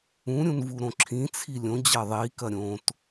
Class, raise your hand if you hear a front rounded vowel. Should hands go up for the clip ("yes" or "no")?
no